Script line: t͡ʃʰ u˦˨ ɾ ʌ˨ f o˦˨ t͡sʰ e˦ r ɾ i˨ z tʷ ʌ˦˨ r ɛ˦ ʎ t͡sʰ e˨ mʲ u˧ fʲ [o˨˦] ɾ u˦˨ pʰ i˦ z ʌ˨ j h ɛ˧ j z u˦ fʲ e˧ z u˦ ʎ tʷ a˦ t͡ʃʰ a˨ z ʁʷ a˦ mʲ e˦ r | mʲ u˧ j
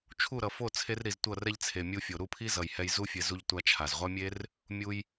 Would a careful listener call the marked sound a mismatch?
yes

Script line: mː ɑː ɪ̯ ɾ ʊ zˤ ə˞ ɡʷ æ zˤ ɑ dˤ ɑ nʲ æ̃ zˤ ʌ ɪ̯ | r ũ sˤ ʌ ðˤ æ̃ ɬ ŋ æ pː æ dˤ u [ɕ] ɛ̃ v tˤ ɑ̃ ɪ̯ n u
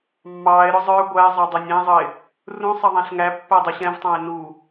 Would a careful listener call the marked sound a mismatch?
no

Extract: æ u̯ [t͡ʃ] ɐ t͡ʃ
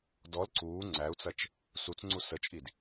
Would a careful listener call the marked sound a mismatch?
yes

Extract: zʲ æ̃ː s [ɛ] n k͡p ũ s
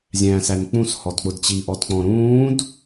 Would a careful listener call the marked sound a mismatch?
yes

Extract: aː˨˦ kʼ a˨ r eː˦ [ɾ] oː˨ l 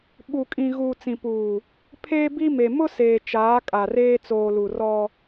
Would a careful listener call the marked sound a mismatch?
yes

